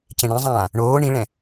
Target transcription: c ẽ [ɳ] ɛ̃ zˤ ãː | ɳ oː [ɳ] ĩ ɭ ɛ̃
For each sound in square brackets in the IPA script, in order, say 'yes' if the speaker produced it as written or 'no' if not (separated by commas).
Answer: yes, yes